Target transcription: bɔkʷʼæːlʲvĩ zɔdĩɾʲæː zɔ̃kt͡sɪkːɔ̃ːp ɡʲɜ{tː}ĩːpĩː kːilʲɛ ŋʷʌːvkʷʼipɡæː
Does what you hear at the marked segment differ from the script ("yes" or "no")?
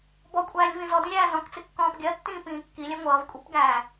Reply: no